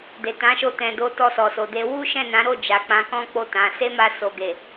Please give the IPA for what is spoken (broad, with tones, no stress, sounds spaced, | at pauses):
d e˨ t ã˨˦ ʃ o˧ t ɛ̃˨ d o˧ t ɔ˧ s ɔ˨ s o˨ d e˧ w u˦ ʃ ɛ̃˦˨ n ã˨˦ ɾ o˦˨ d͡ʒ a˨ k͡p ã˨˦ k ɔ̃˦ k͡p o˦˨ t ã˨˦ s e˦ m a˧ s o˨ ɡ e˨